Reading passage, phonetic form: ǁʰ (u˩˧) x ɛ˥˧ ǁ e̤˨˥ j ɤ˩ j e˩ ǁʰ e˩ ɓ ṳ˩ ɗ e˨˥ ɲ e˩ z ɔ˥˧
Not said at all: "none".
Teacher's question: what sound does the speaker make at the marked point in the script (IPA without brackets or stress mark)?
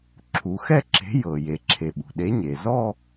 u˩˧